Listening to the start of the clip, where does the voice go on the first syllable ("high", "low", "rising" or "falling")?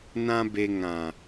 high